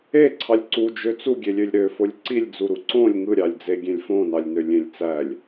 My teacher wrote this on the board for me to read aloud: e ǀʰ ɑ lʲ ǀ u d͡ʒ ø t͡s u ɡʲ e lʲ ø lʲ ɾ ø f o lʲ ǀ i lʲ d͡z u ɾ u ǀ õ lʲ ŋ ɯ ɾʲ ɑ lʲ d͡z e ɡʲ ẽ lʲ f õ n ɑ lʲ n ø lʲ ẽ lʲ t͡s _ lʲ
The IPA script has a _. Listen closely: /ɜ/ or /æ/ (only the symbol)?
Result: æ